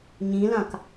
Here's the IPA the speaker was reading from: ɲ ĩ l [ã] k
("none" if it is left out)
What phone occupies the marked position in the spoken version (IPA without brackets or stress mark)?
ã